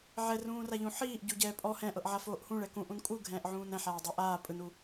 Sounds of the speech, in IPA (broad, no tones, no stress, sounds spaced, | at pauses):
ʕ ɛ r ũː r a ʎ ũ ħ iː ʔ ɟ u ɟ ɛː pʼ ɔ h ɛ̃ ʔ ɤ ʔ ʕ a f oː ʔ h ũ ɭ ɛ k ũ ʔ ũ n kʼ u ɡʱ ɛ̃ː ʔ ʕ ũː n ɛ̃ ħ aː dˤ i ʔ aː pʼ ɯ n u